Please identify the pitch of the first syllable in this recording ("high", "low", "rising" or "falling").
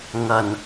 low